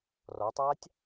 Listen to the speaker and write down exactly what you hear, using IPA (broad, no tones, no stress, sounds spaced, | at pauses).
r ɔ tˤ aː tʲ